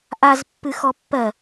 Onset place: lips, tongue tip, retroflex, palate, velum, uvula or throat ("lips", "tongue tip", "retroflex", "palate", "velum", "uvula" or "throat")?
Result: throat